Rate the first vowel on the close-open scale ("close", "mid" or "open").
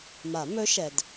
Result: open